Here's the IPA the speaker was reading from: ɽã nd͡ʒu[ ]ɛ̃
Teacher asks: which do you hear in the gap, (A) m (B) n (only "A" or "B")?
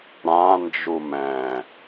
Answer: A